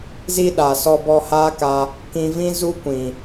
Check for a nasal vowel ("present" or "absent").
present